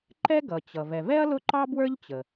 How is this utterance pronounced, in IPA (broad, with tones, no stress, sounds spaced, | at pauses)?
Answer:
ǃ ɛ˥ ɡ ʌ˩ t͡ɕ ʌ˩ v ɛ˩ v ɛ˥ ɐ̯ l ʊ˥ ǃ ɑ˥ b w ə˞˥ ʎ t͡ɕ ə˩